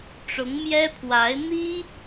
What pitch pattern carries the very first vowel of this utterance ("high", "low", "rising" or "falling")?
rising